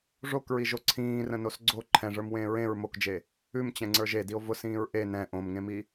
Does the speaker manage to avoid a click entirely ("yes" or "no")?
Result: no